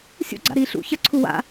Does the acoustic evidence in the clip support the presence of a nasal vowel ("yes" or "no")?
no